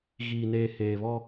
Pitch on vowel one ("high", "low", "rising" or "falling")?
low